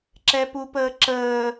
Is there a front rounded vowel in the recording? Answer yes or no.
no